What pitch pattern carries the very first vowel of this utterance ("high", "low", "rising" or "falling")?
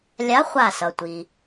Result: rising